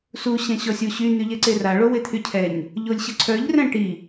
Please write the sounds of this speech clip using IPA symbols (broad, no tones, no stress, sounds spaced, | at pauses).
s u ɕ ɛ̃ ɕ ɔ sʲ o ɕ y n̪ y ʎ ɛ ǀ e r a ɭ o w e t̪ʰ y cʰ ɛ ɲ | ʎ o lʲ ɕ ə ǀʰ œ ʎ r ɛ̃ ʈ i